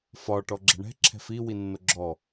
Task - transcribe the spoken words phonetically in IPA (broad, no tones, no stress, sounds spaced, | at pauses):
f ɒ ʈ ɔ ɡ͡ǁ ɛ̤ ɳ ɛ̤ ǁʰ ɛ̤ f i w i nː o ɡ͡ǁ ɔ